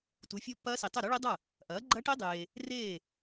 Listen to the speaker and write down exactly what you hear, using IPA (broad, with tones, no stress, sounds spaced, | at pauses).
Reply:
t u˩˥ fʲ o˦˥ pː ɐː˦˥ s i˨ tˤ ɵ˥˩ ɾ o˦˥ ɭ i˦˥ dˤ ɐ˥˩ | ʔ ɐː˩˥ ɡ͡ǃ ɐ˦˥ ʈ i˦˥ dˤ eː˨ | r eː˥˩